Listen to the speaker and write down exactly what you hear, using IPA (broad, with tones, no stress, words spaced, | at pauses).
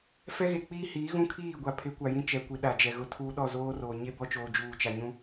fɛ˦ɣe˨ k͡piː˦hiː˨˦ɣũ˦ kʰiː˦˨ɡʷa˨ pʰɪ˨˦kʷa˨jĩ˦t͡ʃɛ˨ kʷi˨ɗa˨d͡ʒɛ˨ ɣʊ˨ tʰuː˦ɗɔ˦˨ zoː˦roː˨ ɲe˦bɔ˦t͡ʃoː˨ d͡ʒuː˨t͡ʃa˨ɲũ˦